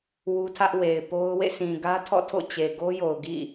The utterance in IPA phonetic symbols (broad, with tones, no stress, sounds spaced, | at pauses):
w u˦ tʰ ä˦ ʔ w e˨ ɪ̯ p o˦ ʊ̯ w ḛ˦˨ s ĩ˨ ɡ ä˦ tʰ ɔ̰˦˨ tʰ o̰˦˨ t͡ɕ e˨ ɡ o˦ j o˨ ʊ̯ ɡ ḭ˦˨